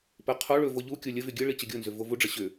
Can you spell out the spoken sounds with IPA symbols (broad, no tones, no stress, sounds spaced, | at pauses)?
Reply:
p ɘ qʰ o ɭ ɵ v o ʎ u kʲ o lʲ ə v y ɡʲ ɘ ɭ i t͡ɕ ə ɡʲ o n z ʏ v o v u ɖ͡ʐ ə ɕ ʏ